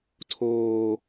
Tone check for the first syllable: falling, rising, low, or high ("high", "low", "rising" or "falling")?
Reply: high